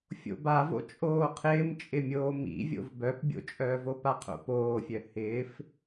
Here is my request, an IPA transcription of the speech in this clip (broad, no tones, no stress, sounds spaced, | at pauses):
fʲ o̰ b a v o̰ t͡ʃʼ oː qʰ ɪː m t͡ʃʼ ɪ mʲ oː m ḭ vʲ o̰ v b œ p bʲ o̰ t͡ʃʼ œː v o p a qʰ o̰ p oː fʲ œ h ɪː f